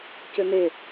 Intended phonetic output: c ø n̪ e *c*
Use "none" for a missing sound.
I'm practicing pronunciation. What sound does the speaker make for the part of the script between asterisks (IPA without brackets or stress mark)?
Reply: none